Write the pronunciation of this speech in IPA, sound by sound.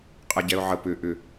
qʼ ɛ ɟ ɛ ʊ̯ ʕ ə p ʏ ʔ ʏ

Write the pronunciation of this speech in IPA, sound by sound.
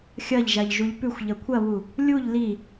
xʲ ɐ ʎ ʒ a ʎ ʒ u ʎ p ʉ xʷ ʎ ɐ kʷʰ ɐ β u | lʲ u ʎ l i

